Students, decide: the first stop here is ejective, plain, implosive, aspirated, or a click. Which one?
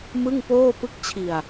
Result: plain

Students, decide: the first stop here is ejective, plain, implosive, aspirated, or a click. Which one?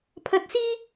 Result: aspirated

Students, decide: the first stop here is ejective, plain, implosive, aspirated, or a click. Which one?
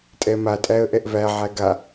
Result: ejective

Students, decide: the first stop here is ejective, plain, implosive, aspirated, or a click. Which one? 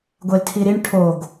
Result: plain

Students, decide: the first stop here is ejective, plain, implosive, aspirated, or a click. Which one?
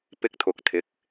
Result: plain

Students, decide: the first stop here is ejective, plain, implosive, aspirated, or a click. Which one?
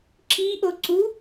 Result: click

